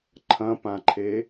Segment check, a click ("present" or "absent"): present